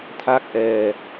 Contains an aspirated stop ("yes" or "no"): yes